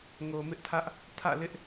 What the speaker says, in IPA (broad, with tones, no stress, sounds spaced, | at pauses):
ŋ o˨ m ɪ˦ ʔ tʰ ä˦ ʔ | tʰ ä̰˦˨ l ɪ˦ ʔ